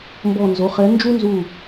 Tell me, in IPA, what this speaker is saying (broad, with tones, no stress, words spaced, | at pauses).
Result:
mbɔ˧˩nzo˩˧˩χɛ˨˥ nd͡ʒu˦nzu˧˩